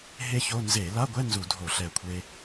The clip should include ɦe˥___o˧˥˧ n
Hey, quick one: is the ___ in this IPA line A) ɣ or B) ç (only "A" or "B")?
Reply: B